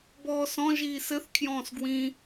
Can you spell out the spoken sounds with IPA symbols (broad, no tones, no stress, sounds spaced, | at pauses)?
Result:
b ɔː s ɔ̃ ʒ iː s ɘ θ kʰ j ɔ̃ː s ɡ w ĩ